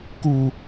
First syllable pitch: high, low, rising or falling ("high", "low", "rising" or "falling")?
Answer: low